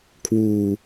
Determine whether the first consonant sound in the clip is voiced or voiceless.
voiceless